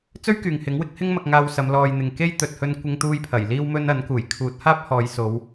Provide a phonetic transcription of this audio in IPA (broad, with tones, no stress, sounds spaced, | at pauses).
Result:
t͡s ɵ˥ ɥ k yː˨ ŋ h ɪ˨˥ ŋ w ɪ˥ k̚ h ɪ˥ ŋ m ɐ˧ k̚ ŋ aː˧ w s ɐ˨˧ m l ɔː˨ j n̪ ɪ˨ ŋ k e˥ j t̪ ɵ˨ t̚ h ɵ˧ n kʷ ɪ˧ ŋ t̪ uː˧ j pʰ ɐ˨˩ j l iː˧ w m ɵ˧ n ɐ˨˥ n k uː˨˩ j kʰ uː˨˥ t̚ h aː˥ p̚ h ɔː˨˧ j s o˨˧ w